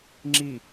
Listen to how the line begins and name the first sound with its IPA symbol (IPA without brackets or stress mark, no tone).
ŋ͡ǁ